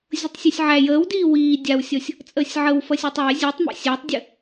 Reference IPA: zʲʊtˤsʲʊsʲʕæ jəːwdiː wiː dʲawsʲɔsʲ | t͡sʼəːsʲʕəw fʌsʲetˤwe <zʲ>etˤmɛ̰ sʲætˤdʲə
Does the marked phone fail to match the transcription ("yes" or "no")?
no